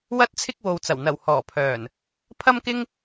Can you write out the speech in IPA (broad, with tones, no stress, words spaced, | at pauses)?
wɐ˧t̚t͡sʰɪ˧k̚ wo˨wt͡sɐ˨˩w n̪ɐ˨˩w hɔː˨˩pʰœː˨˩n | pʰɐ˥mkɪ˥ŋ